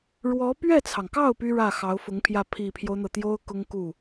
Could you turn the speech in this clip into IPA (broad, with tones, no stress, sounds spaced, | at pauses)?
ɻ w ɔ˧˥ p ɥ ɛ˥˩ t͡sʰ ɑ˩ ŋ k ɑ˥˩ ʊ̯ p y˥ ɻ ä˥˩ x ɑ˧˥ ʊ̯ f ʊ˧˥ ŋ pʰ j ä˥˩ pʰ i˨˩ pʰ j o˦ ʊ̯ n̪ ɤ˩ t̪ j o˥ ʊ̯ k ʊ˥ ŋ k u˥˩